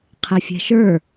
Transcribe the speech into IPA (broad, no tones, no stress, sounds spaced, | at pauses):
qʰ ɛ fʲ æ̤ ʃ ə˞